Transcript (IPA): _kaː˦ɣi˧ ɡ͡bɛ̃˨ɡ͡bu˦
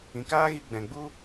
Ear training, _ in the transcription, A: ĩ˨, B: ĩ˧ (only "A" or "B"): A